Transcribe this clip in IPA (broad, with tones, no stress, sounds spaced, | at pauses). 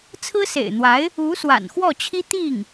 t͡sʰ ɹ̩˥ s ḛ˨˩ ɪ̯ n̪ w a˧˥ ɪ̯ | u˧˥ s w a̰˨˩ n x w ɔ˥˩ t͡ɕʰ i˥ t̪ i˥˩ ŋ